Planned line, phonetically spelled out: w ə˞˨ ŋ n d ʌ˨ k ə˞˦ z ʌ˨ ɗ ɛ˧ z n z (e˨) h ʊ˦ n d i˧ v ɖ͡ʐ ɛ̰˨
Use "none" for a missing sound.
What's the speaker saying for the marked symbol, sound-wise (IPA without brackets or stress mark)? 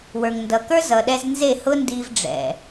e˦˨